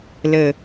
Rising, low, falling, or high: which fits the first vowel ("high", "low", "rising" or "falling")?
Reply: low